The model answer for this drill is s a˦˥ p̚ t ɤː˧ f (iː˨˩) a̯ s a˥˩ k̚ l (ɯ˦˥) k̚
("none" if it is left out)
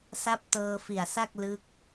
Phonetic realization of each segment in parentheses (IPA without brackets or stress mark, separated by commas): i˨˩, ɯ˦˥